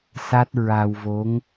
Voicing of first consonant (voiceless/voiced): voiceless